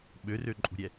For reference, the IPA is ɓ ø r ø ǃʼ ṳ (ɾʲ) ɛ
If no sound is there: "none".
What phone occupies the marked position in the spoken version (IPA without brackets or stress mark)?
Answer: ɾʲ